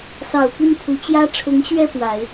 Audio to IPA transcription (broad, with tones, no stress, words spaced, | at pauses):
sɑ˨˩ʊ̯ pi˥˩npʰu˧˥t͡ɕjä˥ ʈ͡ʂʰʊ˧˥ŋɕɥɛ˥˩ pwa˨˩˦ɪ̯